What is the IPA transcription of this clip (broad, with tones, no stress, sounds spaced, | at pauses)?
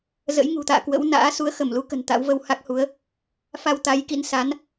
z ə̰˧˥ j ŋ ṳ˨˩ t̪ a̰ː˧˨ k w ə̰˧˥ w n a̰ː˧˥ s u˨˦ ə̯ x ə˧˩ m l u˨˦ k ə̤˨˩ n t̪ a̰˧˥ w v ə˧ w h a˦˥ k̚ h u˨˦ ə̯ | f a˧ w t̪ a˨˦ j k ḭ˧˥ n s a˨˦ n